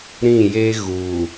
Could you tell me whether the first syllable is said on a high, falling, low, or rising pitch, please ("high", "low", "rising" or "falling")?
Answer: falling